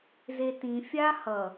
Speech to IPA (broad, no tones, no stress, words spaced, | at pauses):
zetĩ fʲahʌ